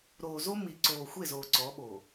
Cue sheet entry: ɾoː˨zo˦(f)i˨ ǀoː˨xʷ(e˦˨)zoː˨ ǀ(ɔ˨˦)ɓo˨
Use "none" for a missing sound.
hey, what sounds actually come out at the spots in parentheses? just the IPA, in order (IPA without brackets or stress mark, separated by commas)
m, e˦˨, ɔ˨˦